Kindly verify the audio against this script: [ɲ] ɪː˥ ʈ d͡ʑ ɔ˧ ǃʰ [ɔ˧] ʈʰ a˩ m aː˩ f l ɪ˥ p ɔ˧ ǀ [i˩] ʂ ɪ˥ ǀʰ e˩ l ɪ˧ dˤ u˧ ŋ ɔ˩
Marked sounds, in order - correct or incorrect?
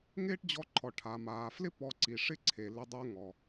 incorrect, incorrect, correct

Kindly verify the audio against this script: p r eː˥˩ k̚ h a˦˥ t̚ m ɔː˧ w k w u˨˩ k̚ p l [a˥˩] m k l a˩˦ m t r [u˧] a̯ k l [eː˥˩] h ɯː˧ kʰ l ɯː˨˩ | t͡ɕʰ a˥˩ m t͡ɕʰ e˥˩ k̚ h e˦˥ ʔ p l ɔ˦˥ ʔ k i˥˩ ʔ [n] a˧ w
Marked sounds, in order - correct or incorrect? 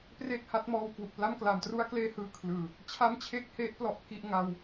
correct, incorrect, correct, incorrect

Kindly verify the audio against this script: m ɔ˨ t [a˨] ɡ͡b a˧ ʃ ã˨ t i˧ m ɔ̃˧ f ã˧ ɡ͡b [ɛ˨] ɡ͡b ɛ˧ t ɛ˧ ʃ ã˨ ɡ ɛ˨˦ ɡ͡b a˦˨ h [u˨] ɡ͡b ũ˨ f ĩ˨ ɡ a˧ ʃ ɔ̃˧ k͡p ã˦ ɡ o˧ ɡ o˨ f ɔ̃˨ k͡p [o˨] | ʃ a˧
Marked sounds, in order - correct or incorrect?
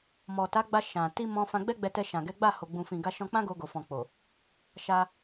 incorrect, incorrect, incorrect, correct

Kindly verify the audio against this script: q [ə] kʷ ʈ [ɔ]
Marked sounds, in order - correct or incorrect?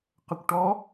correct, correct

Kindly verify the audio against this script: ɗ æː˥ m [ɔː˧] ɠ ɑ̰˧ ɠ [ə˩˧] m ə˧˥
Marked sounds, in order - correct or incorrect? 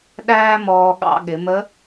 correct, incorrect

